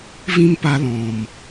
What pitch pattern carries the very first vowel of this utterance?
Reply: high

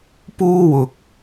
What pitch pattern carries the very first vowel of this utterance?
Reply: high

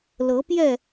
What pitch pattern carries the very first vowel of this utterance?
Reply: rising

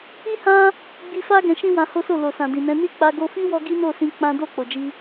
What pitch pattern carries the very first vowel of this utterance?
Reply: high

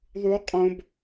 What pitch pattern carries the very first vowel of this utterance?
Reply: high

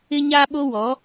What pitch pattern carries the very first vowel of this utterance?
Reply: high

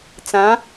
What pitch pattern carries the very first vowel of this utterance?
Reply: rising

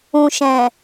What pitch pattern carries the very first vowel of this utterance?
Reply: low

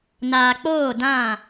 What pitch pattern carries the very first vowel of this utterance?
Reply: low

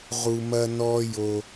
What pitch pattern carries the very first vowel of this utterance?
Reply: high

